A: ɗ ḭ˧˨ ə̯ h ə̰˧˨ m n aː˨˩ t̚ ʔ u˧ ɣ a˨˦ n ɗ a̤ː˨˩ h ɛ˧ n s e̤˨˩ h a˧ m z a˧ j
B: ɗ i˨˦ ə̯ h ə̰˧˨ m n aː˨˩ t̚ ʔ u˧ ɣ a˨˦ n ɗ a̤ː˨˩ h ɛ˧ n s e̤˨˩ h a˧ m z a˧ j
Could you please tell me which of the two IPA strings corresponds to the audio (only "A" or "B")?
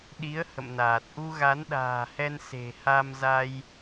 B